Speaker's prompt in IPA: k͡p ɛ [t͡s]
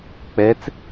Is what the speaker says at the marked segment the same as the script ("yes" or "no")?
yes